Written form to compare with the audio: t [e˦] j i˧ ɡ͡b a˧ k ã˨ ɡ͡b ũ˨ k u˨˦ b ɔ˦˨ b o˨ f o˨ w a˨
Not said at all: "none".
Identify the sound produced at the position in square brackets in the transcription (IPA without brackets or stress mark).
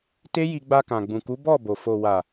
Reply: e˦